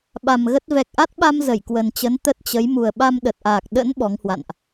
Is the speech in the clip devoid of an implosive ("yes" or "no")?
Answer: no